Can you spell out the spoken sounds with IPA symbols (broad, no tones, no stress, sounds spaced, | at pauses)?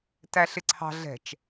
t æ ɬ ɪ ǀʰ ɑ̤ ɮ ɛ̤ t͡ʃ